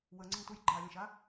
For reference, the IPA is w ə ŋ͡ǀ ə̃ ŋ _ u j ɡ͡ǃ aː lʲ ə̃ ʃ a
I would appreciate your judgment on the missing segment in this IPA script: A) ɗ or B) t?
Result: B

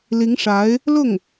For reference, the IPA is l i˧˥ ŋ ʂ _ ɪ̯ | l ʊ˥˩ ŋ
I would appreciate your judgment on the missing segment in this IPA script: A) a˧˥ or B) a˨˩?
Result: A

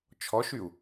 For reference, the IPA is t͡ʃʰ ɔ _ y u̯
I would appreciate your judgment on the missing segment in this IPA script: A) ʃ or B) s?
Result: A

